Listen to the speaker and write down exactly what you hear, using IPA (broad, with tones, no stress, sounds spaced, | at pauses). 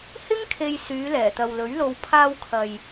h ɪ˥ ŋ kʰ e˨ j s yː˨˧ l ɛː˨˩ t̪ ɐ˨ w l ɵ˨˥ ɥ l o˧ w pʰ aː˧ w kʰ ɐ˨ j